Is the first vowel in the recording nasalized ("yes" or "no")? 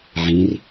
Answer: yes